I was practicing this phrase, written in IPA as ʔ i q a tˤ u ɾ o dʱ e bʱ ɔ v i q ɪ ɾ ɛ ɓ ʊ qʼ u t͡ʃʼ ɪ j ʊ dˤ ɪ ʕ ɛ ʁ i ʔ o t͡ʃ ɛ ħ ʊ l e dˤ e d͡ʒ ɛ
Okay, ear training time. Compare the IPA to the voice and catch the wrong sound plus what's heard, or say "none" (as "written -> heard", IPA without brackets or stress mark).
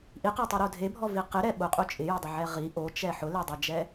none